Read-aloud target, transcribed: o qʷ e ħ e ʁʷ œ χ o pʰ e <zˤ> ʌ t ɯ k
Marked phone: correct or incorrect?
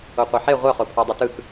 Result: incorrect